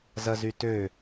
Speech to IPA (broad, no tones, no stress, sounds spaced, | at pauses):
z ɐ z y t ø